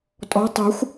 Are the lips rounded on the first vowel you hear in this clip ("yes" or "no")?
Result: yes